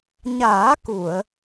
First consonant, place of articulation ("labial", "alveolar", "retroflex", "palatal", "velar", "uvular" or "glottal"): palatal